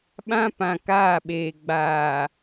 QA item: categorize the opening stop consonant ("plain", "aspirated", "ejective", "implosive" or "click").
implosive